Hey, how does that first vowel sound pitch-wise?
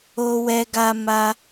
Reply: high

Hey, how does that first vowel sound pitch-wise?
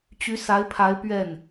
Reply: rising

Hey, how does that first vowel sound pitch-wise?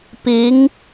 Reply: rising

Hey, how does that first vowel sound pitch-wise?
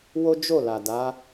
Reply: high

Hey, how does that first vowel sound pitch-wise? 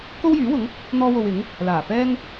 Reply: high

